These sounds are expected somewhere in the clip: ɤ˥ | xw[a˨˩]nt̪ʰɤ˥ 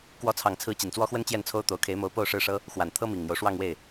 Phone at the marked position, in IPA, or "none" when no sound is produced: a˨˩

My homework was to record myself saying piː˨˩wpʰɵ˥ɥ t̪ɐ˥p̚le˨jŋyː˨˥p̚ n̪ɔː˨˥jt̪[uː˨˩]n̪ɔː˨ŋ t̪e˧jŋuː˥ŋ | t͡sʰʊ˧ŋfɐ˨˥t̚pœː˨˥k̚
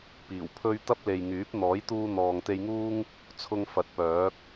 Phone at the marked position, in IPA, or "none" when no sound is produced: uː˧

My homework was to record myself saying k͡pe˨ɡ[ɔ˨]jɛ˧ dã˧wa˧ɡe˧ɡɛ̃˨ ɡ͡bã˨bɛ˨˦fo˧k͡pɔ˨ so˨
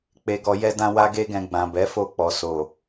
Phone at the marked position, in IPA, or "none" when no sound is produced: ɔ˨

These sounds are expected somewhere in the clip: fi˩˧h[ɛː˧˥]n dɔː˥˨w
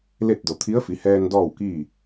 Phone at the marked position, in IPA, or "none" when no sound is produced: ɛː˧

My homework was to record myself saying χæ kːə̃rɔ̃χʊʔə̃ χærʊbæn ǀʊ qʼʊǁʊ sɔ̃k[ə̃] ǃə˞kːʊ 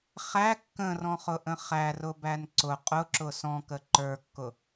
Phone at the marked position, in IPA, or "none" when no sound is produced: ə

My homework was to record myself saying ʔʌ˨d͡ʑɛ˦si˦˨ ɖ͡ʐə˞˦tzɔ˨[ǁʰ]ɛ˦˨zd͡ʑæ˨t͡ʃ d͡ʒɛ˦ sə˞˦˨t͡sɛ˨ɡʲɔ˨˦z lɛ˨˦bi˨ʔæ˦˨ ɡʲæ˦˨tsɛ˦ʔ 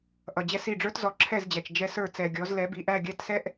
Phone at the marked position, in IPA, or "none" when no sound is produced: ǁʰ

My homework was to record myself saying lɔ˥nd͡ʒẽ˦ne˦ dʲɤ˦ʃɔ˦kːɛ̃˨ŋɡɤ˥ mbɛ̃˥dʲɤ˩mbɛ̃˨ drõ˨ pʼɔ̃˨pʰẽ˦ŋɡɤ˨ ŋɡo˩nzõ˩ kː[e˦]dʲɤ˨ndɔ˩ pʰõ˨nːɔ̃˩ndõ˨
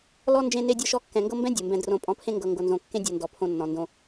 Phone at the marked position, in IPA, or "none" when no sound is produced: ẽ˦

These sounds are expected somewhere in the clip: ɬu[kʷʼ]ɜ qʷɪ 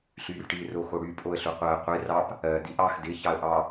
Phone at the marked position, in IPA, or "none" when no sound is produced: qʷ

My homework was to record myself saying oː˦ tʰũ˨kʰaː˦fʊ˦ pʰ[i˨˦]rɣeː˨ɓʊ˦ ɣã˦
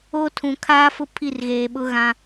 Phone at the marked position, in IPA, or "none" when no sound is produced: i˦˨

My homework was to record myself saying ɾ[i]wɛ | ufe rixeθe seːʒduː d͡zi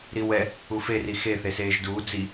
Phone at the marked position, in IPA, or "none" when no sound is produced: i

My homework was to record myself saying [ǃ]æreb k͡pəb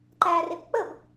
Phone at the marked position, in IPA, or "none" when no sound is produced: ǃ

